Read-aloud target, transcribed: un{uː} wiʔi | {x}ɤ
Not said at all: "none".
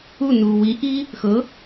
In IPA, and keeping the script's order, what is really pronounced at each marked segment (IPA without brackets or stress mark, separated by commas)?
uː, x